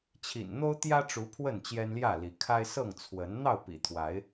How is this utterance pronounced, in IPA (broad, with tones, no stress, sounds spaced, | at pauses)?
t͡ɕʰ ḭ˨˩ n n̪ o˦ ʊ̯ t̪ j ä˦ ʈ͡ʂ u˨˦ pʰ w ə˥˨ n t͡ɕ j ɛ˦ n l j ä˥˨ l i˨˦ kʰ a˦ ɪ̯ s ɤ˥˨ ŋ t͡sʰ w ə˨˦ n n̪ ɑ˥˨ ʊ̯ p ḭ˨˩ t̪ʰ w a˨˦ ɪ̯